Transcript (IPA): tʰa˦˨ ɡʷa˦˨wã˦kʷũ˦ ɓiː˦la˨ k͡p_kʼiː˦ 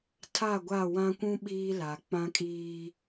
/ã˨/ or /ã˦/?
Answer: ã˦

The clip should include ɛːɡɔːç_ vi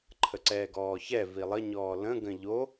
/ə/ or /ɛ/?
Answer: ɛ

